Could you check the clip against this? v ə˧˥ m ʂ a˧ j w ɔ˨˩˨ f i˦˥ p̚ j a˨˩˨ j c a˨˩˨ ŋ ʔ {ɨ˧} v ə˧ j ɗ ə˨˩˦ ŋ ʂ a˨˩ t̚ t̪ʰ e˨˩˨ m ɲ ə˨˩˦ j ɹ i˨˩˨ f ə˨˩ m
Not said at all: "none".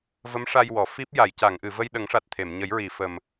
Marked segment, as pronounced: ɨ˨˩˨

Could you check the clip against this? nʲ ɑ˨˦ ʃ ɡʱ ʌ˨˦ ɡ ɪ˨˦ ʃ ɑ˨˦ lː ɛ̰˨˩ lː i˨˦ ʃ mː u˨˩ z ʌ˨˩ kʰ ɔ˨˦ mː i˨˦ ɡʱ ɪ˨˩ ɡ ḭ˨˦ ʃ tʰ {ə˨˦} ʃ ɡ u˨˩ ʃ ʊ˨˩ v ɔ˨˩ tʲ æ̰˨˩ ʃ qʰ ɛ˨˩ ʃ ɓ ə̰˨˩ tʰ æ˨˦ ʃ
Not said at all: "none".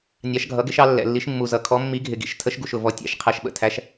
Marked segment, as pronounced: ə˨˦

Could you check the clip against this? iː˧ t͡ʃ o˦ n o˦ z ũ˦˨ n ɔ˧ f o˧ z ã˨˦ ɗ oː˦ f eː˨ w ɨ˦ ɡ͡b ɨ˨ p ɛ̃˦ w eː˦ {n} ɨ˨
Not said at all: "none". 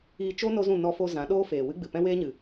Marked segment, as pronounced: ɲ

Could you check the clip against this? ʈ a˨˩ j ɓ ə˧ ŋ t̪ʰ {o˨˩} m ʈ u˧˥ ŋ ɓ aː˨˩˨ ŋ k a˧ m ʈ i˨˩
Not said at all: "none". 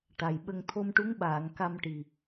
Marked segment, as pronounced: o˧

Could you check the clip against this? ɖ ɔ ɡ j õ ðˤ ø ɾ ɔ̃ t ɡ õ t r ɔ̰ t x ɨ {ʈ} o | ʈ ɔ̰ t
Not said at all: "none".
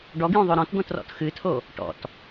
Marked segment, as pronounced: tʰ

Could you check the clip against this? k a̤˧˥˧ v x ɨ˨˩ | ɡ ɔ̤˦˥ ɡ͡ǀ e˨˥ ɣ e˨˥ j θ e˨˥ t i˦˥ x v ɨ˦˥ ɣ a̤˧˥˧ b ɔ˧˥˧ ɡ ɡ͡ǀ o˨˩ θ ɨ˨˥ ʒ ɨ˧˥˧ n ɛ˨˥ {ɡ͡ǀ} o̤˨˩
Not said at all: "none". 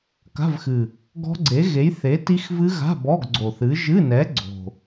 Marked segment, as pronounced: ɡ͡ǀ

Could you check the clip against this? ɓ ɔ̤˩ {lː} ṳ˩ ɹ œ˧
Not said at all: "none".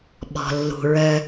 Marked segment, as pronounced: lː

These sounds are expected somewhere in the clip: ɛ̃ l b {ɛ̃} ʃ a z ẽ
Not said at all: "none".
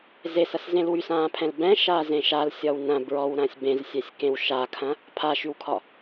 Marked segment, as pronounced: ɛ̃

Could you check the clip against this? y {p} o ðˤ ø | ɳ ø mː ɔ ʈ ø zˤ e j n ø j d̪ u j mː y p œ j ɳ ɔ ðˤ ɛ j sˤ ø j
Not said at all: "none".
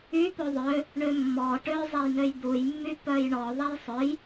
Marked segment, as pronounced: p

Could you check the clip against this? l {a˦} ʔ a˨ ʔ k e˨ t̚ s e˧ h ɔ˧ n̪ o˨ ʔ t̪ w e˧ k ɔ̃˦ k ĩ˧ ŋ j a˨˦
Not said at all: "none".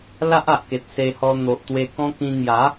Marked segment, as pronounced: a˦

